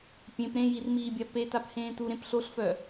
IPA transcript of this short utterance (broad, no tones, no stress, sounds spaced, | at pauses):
pʲ ẽ p ɾ ẽ j i r m iː bʲ a p e t a p h ẽː t u ɾ ẽ p ɬ o ɬ f œ